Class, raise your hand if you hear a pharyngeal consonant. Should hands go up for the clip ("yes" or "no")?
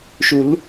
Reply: no